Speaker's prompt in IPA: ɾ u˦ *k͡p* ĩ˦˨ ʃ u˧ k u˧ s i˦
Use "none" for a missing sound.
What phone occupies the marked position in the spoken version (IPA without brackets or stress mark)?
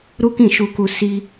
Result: k